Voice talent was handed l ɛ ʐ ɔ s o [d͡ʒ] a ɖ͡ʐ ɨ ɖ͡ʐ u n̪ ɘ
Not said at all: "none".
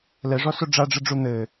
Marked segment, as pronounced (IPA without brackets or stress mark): ɖ͡ʐ